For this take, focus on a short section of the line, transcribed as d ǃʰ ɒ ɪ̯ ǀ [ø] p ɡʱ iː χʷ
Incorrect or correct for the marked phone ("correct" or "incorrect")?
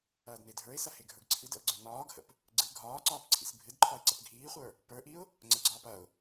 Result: incorrect